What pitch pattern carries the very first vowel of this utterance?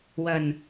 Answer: low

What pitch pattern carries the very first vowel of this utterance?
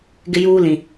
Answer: high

